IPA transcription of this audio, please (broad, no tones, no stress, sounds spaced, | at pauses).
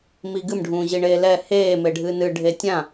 m i ɡ ɨ m ɖʱ ũː ʑ i ɳ eː l ɛ h eː m e ɖʱ ɨː n ɨ ɖʱ e tʲ ã